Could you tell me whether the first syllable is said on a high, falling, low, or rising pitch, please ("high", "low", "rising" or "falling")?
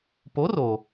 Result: rising